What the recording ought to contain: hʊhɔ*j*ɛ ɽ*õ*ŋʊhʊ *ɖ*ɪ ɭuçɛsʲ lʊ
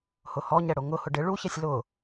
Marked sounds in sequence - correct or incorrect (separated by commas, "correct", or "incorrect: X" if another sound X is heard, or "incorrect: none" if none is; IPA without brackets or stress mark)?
incorrect: ɲ, incorrect: o, correct